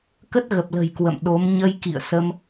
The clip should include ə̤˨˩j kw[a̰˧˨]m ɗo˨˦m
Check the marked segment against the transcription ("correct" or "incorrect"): incorrect